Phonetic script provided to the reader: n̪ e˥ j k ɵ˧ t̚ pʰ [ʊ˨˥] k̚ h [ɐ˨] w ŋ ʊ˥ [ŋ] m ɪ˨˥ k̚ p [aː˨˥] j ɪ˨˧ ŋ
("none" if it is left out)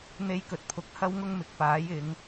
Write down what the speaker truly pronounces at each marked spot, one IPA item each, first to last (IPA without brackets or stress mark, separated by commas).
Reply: ʊ˨˥, ɐ˥, ŋ, aː˨˥